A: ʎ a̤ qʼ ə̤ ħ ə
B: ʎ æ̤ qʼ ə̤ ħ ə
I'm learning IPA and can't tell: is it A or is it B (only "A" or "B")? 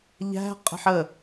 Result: B